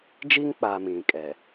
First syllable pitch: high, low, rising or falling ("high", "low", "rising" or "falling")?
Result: high